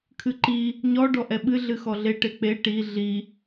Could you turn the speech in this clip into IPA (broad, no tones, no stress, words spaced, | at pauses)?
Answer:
kʰɨǃi | ɲɔ ɖɔʔɛɓɨ ɮɨxɔɮe ʈek͡pe ʈi ɮi